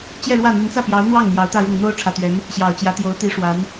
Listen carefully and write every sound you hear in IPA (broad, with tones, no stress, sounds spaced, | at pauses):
t͡ɕ j ɛ˥˧ ɻ w ä˥˩ n̪ y˧˥ n t͡s ä˥˩ p j ɑ˧˥ ʊ̯ n̪ w ɑ˥˩ ŋ n̪ j ɑ˧˥ ʊ̯ t̪ ä˥˧ ɻ ʊ˥˩ ŋ n̪ o˥ ʊ̯ ʈ͡ʂʰ ä˨˩ t̪ ɥ ɛ˧˥ n | ɕ j ɑ˨˩ ʊ̯ t͡ɕ j ä˧˥ t̪ j o˧˥ ʊ̯ t̪ i˧˥ ʂ w a˧˥ n